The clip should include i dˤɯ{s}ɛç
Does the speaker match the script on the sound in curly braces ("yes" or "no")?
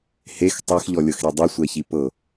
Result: no